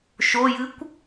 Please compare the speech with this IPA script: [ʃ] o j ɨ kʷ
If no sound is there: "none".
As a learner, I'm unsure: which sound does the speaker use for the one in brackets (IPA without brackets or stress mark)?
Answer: ʃ